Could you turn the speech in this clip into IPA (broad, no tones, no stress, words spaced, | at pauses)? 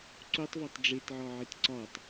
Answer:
ǀutˤvɒtˤ ɖ͡ʐetʕɒʕit ǀɒtˤ